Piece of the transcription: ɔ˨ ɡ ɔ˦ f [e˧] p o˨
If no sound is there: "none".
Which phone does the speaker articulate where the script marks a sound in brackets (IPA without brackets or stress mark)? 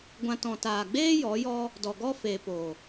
e˨